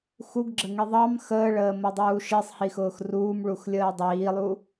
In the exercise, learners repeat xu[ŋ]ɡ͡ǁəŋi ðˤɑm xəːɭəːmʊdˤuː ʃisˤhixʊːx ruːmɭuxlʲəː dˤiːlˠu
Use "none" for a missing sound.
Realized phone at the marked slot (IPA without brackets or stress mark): ɡ